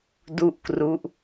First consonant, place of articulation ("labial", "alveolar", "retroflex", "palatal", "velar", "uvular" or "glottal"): alveolar